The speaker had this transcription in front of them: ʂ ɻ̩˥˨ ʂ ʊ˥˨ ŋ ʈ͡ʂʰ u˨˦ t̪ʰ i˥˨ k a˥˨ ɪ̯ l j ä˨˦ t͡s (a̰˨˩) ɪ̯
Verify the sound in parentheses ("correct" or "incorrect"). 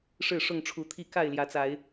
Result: incorrect